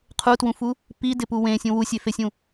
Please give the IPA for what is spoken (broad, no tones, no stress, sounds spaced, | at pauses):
qʰ u t w ũ f u | p i d ɪ p u w ẽ sʲ ũ w u sʲ e f e sʲ ũ